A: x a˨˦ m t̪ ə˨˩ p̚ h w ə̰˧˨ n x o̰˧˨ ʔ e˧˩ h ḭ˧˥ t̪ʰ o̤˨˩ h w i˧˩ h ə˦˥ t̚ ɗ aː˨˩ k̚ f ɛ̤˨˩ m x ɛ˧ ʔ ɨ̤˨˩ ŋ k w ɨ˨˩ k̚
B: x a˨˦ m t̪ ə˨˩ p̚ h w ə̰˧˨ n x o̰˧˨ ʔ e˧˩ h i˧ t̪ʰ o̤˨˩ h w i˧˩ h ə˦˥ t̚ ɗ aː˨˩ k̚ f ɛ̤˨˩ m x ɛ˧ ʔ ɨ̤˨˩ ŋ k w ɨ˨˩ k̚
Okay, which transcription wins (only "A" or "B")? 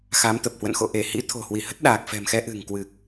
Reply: A